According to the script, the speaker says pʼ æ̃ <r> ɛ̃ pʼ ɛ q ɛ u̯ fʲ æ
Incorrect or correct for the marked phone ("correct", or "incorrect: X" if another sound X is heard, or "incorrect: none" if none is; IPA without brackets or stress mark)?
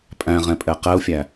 incorrect: ʁ